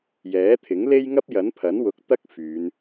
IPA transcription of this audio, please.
j ɛː˨˥ t̪ʰ ɪ˨˥ ŋ l e˥ j ŋ ɐ˥ p̚ j ɐ˨˥ n pʰ ɐ˨˥ n w ʊ˨˥ k̚ t̪ ɐ˥ k̚ f yː˨˧ n

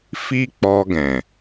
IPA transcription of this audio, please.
f i˦ k͡p ɔ˧ ɡ ɛ̃˨

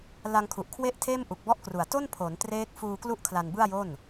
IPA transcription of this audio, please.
l a˧ ŋ kʰ u˨˩ ʔ kʰ w e˥˩ ʔ tʰ eː˥˩ m ʔ u˨˩ k̚ b ɔ˦˥ ʔ k r u˨˩ a̯ t o˥˩ n pʰ o˩˦ n t r eː˦˥ k̚ f uː˧ k l u˥˩ ʔ kʰ l a˧ n b ɯ˥˩ a̯ j o˥˩ n

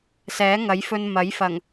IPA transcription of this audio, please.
s ɛː˨˥ ŋ ɐ˨˥ j f ɵ˧ n m ɐ˨˥ j f ɐ˨˩ ŋ

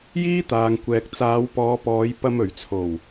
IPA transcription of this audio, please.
j iː˥ t̪ aː˨ ŋ kʷ ɛː˨ k̚ t͡s aː˨˧ w p ɔː˨˧ p ɔː˨˧ j p ɐ˧ m ɵ˨˩ ɥ t͡sʰ o˨˩ w

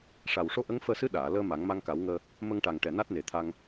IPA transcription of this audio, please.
ʂ a˨˩ w ʂ o˧ ʔ ə˧˥ ŋ f əː˧ s ɨ˧˥ ɗ aː˨˩˨ l əː˧ m a˨˩˦ ŋ m a˧ ŋ k a˨˩˦ w ŋ əː˧ | m ə˧ ŋ ʈ a˨˩ ŋ ʈ ɛ˨˩ n a˦˥ t̚ n e˨˩ t̪ʰ a˧ ŋ

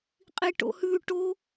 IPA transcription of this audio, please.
qʼ i ʈ o̰ h ʉ ʈ o

